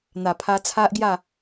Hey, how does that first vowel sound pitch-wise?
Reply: low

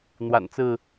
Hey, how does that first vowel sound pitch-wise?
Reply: low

